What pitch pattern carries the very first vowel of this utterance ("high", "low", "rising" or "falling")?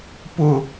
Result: high